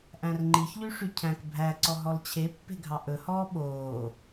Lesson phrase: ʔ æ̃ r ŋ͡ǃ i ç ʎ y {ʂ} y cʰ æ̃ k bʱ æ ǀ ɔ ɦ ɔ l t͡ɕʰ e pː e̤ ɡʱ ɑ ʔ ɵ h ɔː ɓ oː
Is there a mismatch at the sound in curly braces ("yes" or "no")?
no